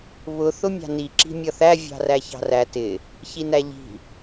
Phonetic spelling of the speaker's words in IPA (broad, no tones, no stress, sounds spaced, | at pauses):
β ʊ θ ʊ mʲ ɑ̤ n i ǁ i̤ mʲ ʌ θ æ vʲ ɑ̤ r æ ç ɑ̤ r æ t ɪ | ç i n æ ʎ i̤